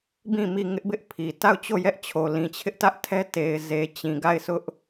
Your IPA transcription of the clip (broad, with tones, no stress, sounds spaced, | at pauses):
b ĩ˦˨ m i˦˨ ŋ ɪ˦ ʔ b ɪ˦ ʔ pʰ i˨ t a˦˨ ʊ̯ t͡ɕ o˦˨ j ɛ˦ ʔ t͡ɕʰ o˨ l ĩ˨ t͡ɕʰ ɪ˦ ʔ t ä˦ ʔ tʰ ɛ˦ t e˨ ɪ̯ z e˨ t͡ɕ ĩ˨ ɡ a˦˨ ɪ̯ sʰ ʊ˦ ʔ